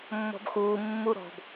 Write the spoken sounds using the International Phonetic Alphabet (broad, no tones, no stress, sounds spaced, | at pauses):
mː ɔ̤ b x uː mː u ɾ ɔ̤ b